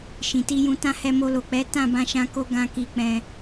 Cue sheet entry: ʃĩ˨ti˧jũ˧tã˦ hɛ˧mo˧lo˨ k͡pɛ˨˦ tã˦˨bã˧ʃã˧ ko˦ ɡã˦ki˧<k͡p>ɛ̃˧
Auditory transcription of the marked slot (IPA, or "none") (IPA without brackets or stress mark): k͡p